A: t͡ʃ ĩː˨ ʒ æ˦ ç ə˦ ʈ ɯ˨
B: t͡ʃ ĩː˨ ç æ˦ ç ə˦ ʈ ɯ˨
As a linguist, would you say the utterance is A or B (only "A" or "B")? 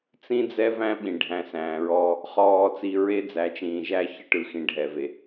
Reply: A